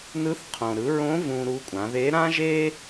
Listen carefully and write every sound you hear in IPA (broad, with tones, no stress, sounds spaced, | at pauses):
n ɯ˧˥ θ qʰ õ˩ ɾ ɯ˩˧ ɹ õ˧˥ v ũ˧ ɾ u˧˥ kʷʼ ã˩˧ ð e˧˥ ɾ ã˥ ʒ e˥